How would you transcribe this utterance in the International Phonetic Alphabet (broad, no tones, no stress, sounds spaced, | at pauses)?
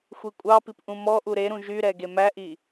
xʷ i kʷʼ ɑ p i p ʔ ũ m ɔ ʔ u ɾ e ɾ ũ ʒ y ɾ ɛ ɡ e m æ ʔ i